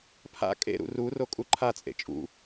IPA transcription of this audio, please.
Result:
pʰ a̰ kʼ ḛ ɾ ṵ r u r o kʼ u ǃʰ a t͡sʼ ḛ t͡ʃʼ ṵ

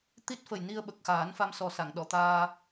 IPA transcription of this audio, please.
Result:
t̪ i˦˥ t̚ f ə˨˩ j n i˧ ə̯ ɓ ə˨˩ k̚ x aː˨˩˦ n f a˧ m s ɔ˨˩ s a˨˩˨ ŋ ɗ ɔ˨˩˨ t̪ aː˧

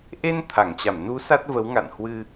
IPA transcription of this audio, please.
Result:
ʔ e˧ n t̪ʰ a˧˩ ŋ t͡ɕ a˧˩ m n u˨˦ s a˦˥ t̚ v ə˨˦ w ŋ a̰˧˨ n h w ɨ˧

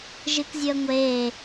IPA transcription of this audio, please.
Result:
ʒ ɨ k zʲ ɵ ə̯ ŋʷ eː

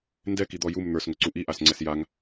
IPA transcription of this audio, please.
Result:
n d ɛ k i d̪ ɔ j u m n̪ ə˞ s ŋ ɵ ǀ u ʔ i ʔ a s ŋ͡ǀ ɛ s j a ŋ

